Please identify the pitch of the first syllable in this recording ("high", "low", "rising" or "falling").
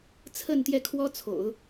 falling